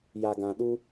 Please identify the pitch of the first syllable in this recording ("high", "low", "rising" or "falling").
low